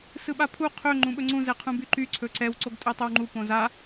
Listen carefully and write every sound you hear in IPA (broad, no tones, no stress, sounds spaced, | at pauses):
s ɯ ɓ a pʰ u qʰ ɵ ŋ͡ǃ ũ ɓ ɵ ŋ͡ǀ ũ z ɛ qʰ ũ b y ǃ y ǀʰ ɵ ǀ ɛ w ǀ o ɡ tʼ ɵ tˤ ɵ w ŋ͡ǃ u p õ z a